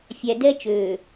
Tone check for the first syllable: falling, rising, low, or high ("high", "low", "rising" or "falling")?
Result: low